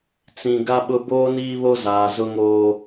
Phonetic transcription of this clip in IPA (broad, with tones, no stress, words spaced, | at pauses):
t͡sĩ˨ ɡa˦ɓʊ˦ boː˦niː˦βo˦zaː˨ zʊ˦ŋoː˦